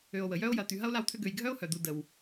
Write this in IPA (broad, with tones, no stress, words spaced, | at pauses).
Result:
ø˨o̯wə˩jœ˦o̯jɐ˨ t̪y˨ɦɐ˥o̯la˦wt̪ʰʏ˦ ɡø˨jɡʱœ˥o̯hœ˩d̪u˨ də˩w